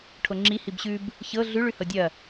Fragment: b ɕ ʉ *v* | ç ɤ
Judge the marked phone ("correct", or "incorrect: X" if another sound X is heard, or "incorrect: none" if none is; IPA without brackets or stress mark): incorrect: b